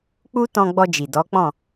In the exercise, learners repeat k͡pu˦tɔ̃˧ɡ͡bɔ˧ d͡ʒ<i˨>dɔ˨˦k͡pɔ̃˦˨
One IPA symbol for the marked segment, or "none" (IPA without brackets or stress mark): i˨